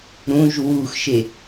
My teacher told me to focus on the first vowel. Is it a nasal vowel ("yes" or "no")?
yes